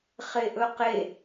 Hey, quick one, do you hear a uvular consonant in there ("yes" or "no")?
yes